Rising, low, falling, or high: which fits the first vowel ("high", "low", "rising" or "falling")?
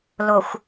low